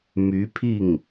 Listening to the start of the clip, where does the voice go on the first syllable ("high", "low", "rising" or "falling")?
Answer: rising